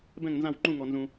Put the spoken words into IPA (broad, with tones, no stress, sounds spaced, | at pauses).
b ɛ̃˥˩ ŋ n z ã˥˩ w ŋ͡ǃ ũ˥˩ ŋ ɔ˨ n z ũ˨